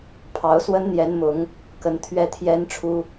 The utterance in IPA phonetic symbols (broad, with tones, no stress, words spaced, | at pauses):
pʰɑ˧˥ʊ̯swə˥nn̪jɛ˧˥n mʊ˧˥ŋ | kə˧˥n t̪ʰɥɛ˥˩t̪ʰjɛ˥n ʈ͡ʂʰu˥